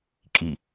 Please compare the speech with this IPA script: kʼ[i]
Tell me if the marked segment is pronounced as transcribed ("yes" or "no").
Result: yes